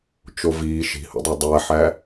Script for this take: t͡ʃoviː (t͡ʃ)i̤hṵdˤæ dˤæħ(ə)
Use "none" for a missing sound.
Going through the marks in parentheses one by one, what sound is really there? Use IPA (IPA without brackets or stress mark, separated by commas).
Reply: ʃ, æ